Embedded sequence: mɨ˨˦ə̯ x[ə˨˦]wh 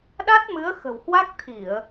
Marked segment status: incorrect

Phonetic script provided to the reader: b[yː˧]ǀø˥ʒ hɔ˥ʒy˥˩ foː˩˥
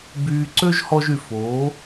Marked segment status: correct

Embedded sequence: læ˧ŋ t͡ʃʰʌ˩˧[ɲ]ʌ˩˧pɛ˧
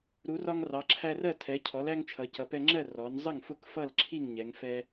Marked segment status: incorrect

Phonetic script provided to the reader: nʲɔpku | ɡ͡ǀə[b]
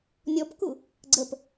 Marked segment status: incorrect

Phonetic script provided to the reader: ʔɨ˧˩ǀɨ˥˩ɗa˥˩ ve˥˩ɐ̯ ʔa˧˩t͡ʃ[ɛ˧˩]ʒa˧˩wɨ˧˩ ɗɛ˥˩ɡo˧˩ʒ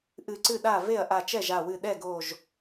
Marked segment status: incorrect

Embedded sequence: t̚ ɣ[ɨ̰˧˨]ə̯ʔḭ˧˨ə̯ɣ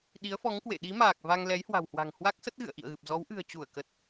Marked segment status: correct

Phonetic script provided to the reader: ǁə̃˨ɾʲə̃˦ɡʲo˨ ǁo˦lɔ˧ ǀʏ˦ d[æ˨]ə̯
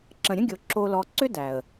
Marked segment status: correct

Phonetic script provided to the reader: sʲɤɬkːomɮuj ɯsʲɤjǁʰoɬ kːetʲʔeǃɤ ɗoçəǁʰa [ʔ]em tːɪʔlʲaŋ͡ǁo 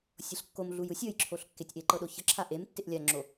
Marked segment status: correct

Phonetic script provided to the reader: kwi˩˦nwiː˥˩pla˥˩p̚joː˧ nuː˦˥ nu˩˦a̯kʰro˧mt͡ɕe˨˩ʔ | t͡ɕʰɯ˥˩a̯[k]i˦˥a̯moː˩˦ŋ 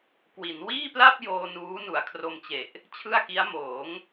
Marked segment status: correct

